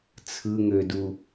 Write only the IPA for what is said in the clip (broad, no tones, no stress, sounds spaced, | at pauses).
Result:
t͡sʰ ɯ ŋ ø d u